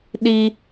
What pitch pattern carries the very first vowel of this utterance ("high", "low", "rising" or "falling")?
high